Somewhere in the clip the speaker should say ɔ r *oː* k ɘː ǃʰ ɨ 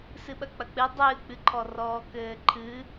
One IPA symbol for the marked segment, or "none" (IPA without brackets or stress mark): ɔː